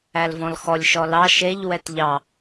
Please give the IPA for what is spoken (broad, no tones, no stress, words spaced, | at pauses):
ælvɔ̃lxɔlʲ ʃɔlɑ ʃeʎ wɛtʎɑ